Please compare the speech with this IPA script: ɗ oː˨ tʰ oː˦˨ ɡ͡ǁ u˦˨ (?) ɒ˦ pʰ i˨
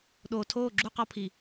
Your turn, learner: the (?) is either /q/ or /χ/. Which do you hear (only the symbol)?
q